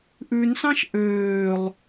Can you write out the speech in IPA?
ʔ ʉ n s ɑ̃ ʃ ʔ øː lˠ

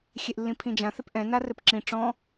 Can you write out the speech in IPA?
xʲ e ʔ lː ĩ pʰ ĩ d͡ʒ ã θ e p ʔ ɛ̃ n a r ɘ p ǁ ĩ ʈ͡ʂ ɔ̃

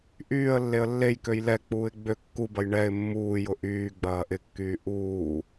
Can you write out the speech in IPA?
ʔ yː ə̯ lː e ə̯ lː e j k ø j l ɛ k͡p uː ɪ̯ ɡ͡b ø kː u b ɐ j ɳ ɛ ɪ̯ mː uː j ʊ ʔ yː ɡ͡b ɐː ʔ ɪ kː yː ʔ uː

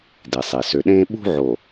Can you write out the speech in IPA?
d i˨ sˤ i˨ s ø˨ ɗ ẽː˦ ɓ ṳ˦ ʕ o˨

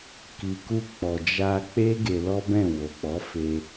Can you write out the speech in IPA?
k i˨ k u˧ k͡p ɔ˨ d͡ʒ a˧ k͡p e˦ ɡ e˧ l ɔ˦ b ɛ̃˦˨ w o˨ k͡p ɔ˨˦ f e˧

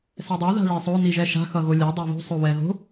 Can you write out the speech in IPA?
s ɛ dˤ a ð a̤ ɭ e sˤ o n i ʒ ɛ ʃ a̤ x ʌ ɣ o lʲ ɛ dˤ e β o̤ sˤ o w ɛ ɣ o̤

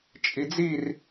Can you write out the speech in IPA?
t͡ʃʼ i d͡z i r

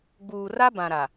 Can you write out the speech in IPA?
ɡ͡b uː˨ r a˦ b ã˨ ɾ a˨

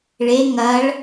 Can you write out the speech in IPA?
ɭ e ŋ ɐ ɭ

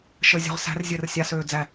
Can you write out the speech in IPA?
ʃ əː zʲ ɔ̤ ʁ s æ̤ r zʲ əː r sʲ a s øː d͡z æ

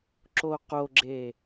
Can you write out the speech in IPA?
ǁ o q o ɡ͡ǁ e

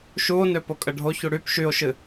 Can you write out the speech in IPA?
ʃ u o̯ n ø p o kʼ ə ɖʱ o ç u ɽ y p ʃ y o̯ ʃ ɨ

